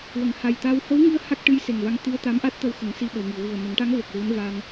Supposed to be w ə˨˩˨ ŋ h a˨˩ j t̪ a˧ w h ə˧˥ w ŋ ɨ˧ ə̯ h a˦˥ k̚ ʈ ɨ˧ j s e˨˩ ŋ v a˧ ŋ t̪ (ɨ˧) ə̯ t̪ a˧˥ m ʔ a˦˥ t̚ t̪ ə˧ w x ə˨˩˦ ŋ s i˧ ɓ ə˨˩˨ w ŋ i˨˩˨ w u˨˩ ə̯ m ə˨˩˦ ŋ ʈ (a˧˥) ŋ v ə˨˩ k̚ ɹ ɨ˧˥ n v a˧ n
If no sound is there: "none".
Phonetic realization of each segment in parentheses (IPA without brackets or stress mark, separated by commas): ɨ˧, a˧˥